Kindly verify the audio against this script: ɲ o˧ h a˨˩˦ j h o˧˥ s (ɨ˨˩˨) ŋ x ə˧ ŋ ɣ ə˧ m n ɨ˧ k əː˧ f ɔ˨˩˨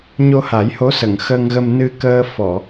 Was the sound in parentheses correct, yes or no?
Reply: no